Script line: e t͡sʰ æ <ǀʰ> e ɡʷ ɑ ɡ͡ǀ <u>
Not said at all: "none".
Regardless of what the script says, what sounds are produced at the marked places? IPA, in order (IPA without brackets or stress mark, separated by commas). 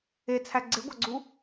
ɡ͡ǀ, u